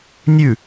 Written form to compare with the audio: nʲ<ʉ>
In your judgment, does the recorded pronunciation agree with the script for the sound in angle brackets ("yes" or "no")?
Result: yes